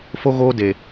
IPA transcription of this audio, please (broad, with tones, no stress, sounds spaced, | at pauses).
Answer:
f o˧ ɣ oː˧ d e˨